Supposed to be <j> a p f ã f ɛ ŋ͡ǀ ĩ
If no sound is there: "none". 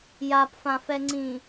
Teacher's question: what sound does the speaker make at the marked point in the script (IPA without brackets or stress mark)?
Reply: j